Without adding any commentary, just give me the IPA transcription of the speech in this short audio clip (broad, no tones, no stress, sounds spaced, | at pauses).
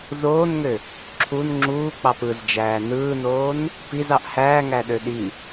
z oː n ŋ ø | ǁʰ u n ŋ͡ǁ uː k͡p ɑ p ɯ z d͡ʒ æː n ɯː n oː n | p i z ɑ ʔ h æː ŋ æ ɗ ø ɗ i